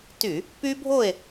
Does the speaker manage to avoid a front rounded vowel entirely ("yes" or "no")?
no